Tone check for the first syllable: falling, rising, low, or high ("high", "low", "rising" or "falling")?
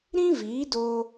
high